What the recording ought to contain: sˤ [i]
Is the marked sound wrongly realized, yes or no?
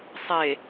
yes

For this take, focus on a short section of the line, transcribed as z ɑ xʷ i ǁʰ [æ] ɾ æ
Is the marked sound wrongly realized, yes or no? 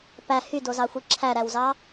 no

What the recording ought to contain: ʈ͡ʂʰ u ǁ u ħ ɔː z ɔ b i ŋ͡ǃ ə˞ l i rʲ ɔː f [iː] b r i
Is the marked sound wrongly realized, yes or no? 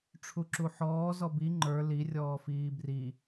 no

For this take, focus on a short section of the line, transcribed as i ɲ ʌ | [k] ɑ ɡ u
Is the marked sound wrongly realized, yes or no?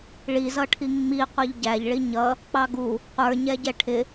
yes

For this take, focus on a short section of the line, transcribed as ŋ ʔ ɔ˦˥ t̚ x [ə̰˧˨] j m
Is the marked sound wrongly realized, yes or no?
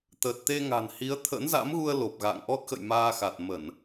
no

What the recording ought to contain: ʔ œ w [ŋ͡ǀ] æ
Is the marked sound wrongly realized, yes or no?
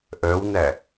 yes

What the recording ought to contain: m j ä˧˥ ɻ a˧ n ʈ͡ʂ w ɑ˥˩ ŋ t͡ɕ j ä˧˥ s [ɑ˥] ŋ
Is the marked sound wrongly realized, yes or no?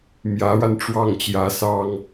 no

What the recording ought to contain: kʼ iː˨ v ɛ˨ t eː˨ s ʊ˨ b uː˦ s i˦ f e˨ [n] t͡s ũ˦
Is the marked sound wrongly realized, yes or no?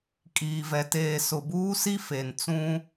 no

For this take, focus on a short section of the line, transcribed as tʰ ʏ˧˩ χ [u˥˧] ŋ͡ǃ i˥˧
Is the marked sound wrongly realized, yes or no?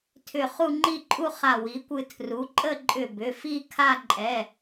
no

